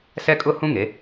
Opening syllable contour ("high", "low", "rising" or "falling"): high